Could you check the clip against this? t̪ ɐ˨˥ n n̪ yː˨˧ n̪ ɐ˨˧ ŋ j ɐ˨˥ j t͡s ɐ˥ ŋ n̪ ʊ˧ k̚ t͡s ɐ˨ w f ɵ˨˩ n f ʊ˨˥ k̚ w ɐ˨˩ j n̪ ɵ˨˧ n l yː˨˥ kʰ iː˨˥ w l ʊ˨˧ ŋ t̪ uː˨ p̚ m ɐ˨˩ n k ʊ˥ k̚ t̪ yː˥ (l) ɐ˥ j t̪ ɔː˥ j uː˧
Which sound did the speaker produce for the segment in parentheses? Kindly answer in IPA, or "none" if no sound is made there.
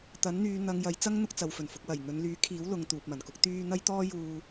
n̪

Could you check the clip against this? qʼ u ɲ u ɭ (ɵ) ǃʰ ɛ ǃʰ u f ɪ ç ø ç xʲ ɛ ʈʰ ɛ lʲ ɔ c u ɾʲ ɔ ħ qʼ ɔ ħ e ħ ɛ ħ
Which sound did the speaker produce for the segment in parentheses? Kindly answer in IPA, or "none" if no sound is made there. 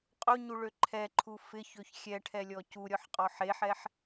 ø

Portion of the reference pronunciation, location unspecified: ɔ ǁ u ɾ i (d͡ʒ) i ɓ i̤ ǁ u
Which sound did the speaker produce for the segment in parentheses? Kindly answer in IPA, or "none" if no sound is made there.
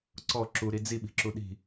d͡z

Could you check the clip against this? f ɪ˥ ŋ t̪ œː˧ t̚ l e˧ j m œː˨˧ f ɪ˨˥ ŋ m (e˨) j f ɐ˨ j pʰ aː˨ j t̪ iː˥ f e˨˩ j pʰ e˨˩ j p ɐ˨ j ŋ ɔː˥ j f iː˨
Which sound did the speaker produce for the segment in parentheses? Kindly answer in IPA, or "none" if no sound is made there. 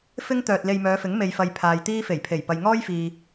e˨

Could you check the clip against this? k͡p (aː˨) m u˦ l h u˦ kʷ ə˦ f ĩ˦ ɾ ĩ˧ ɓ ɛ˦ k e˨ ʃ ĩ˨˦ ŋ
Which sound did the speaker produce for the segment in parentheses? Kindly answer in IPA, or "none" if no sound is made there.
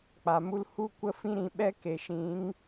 a˨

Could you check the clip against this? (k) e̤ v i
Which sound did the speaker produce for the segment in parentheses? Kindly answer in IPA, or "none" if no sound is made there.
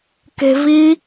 k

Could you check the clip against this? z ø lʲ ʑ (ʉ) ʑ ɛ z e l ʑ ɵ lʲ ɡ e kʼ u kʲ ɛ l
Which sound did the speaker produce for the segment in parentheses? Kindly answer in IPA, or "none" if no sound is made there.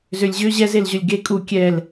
ø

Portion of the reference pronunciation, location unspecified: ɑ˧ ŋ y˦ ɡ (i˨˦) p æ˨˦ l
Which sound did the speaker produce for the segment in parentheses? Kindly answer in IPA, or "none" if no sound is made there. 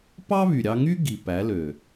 i˨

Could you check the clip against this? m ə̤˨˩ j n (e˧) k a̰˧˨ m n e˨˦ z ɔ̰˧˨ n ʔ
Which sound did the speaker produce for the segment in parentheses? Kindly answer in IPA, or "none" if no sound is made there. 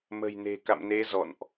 e̤˨˩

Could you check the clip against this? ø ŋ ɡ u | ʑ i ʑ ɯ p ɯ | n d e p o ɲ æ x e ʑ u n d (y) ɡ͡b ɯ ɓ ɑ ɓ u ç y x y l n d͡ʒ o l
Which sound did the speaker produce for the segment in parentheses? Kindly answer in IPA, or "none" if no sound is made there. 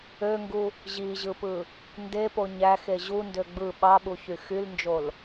ø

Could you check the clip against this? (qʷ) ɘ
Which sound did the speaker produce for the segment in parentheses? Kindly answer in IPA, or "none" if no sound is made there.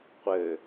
qʷ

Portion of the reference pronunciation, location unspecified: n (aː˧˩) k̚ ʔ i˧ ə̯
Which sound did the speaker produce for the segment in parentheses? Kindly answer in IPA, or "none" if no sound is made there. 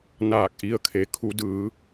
aː˧˩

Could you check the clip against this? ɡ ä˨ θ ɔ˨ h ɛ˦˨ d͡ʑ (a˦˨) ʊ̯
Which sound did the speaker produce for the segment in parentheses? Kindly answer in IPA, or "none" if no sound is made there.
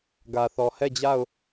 a˦˨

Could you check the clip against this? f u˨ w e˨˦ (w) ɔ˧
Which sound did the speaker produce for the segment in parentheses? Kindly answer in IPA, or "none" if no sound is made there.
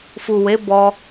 b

